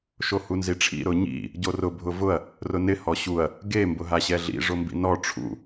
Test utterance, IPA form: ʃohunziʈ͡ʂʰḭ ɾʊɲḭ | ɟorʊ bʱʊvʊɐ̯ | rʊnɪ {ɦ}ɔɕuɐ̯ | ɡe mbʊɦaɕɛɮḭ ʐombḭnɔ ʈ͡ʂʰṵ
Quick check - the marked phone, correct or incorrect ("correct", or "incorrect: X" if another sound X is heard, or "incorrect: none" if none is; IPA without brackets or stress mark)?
incorrect: h